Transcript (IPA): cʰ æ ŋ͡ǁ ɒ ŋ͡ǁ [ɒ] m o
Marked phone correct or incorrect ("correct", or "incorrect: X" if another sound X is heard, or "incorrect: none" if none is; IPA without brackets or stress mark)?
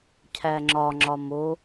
correct